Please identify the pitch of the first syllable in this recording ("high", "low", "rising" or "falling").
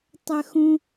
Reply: high